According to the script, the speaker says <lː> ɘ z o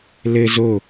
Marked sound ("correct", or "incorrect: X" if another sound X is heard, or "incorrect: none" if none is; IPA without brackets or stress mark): incorrect: l